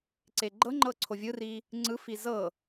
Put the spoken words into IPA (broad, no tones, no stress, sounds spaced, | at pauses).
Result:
ǀ e ɡ͡ǃ ɤ ŋ͡ǃ ɤ ǀʰ o vʲ ɯ r i | ŋ͡ǀ ɯ f i z ɤ